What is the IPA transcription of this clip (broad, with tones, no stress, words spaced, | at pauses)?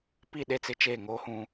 pi˦˨ɗe˦˨t͡sɪ˦t͡ʃeː˦˨ ŋoː˦hũ˦